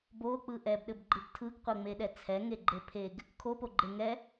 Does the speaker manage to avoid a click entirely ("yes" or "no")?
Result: no